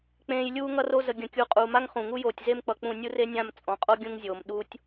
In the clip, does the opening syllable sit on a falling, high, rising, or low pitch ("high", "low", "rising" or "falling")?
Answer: low